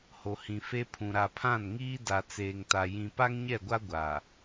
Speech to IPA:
ho˨hĩ˨fe˦pʰũ˨ ɾa˨pʰã˦˨nŋiː˦ da˨t͡seː˨ŋta˨ jĩ˨ pa˦ŋɲɛ˦˨ɡʷa˦ ɡʷaː˨

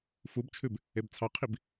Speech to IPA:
fubt͡ʃʰʉb | ebt͡sʰɑqʰib

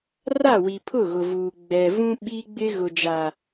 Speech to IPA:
ra˦˨wi˨ pʰʊ˦˨ɣʊ˨vuː˨ ɡ͡bɛ˨ vũ˦ ɓi˦ɡ͡bɪ˦ ɣʊ˨d͡ʒa˨

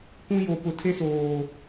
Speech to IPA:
kʷũ˦jo˨ pʊ˨tʰe˦soː˨

